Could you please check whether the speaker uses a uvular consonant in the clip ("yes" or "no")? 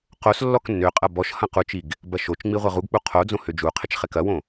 yes